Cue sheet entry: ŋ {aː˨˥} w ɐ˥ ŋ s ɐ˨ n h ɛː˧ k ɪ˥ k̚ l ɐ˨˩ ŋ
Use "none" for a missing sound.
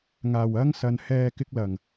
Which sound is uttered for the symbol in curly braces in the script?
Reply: aː˨˩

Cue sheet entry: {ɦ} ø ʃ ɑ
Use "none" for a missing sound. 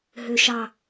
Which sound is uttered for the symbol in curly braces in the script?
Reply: ɦ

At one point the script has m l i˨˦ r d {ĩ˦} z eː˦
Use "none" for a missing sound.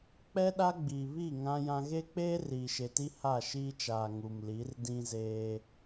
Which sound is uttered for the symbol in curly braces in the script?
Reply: ĩ˦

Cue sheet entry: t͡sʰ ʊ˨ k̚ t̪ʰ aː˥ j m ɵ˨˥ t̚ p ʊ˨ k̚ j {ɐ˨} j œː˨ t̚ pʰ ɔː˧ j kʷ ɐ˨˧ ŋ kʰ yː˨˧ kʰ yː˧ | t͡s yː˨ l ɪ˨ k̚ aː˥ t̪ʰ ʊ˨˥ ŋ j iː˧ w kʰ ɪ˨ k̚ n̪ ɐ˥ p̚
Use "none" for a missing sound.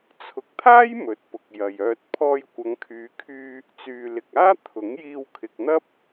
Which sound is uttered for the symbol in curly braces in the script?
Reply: ɐ˨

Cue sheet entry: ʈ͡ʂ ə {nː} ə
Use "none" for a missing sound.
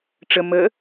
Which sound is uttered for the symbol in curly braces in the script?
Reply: m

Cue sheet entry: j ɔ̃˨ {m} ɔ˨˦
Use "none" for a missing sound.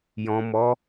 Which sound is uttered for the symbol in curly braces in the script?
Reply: m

